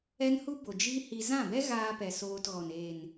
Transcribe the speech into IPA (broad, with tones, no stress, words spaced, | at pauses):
ɛ˦nhu˦bo˨ d͡ʒi˦hi˧ zã˦˨bɛ˦ɣaː˧pɛ˨ soː˧tɣɔ˨n eː˨n